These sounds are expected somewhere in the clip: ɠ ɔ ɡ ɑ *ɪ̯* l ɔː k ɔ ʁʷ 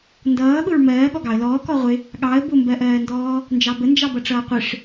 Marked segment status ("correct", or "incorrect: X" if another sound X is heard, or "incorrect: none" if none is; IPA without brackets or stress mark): incorrect: ə̯